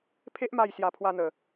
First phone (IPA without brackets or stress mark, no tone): pʰ